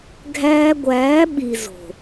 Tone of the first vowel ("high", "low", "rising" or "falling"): high